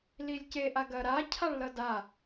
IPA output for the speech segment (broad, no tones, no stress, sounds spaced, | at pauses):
l i lʲ c e ʔ a ɡ ɐ ɾ a cʰ a ɭ l ʌ d a